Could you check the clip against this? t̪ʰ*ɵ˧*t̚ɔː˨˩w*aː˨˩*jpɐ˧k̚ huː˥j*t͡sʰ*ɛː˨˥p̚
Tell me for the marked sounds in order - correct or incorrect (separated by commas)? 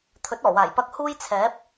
incorrect, correct, correct